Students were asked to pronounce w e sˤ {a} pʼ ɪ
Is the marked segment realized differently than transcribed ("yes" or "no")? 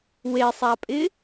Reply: no